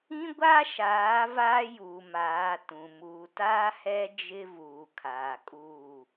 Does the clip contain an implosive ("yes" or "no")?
no